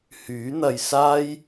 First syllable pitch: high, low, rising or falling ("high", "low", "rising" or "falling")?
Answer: rising